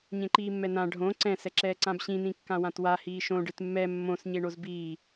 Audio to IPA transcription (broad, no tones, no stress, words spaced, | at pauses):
ɲẽǃiːmːɛnã ɖʱõ ǀɛ̃ sɛǁɛːǀãbɕĩ nĩkːãwãtwa hiːʃõ ɖɨtmːɛ mːõs ɲeɳozbiː